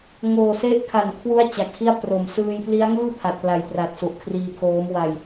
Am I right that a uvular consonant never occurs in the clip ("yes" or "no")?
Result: yes